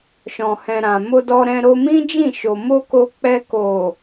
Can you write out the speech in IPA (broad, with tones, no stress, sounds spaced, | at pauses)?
ʃ ɔ̃˨ h ɛ̃˨ ɾ ã˨ m o˧ d ɔ˧ ɾ ɛ̃˧ ɾ o˧ m ĩ˦ d͡ʒ ĩ˦˨ ʃ o˨ m o˧ k o˧ k͡p ɛ˧ k o˨